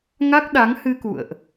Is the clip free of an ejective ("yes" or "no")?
yes